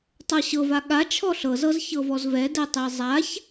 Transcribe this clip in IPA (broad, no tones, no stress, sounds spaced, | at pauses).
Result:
tˤ ɤ ɕ ɤ v a ɠ a t͡ʃʰ ɔ ɬ ɤ z ɤ z ç ɤ v ɔ z v ɛ d ɛ tˤ e zˤ a ç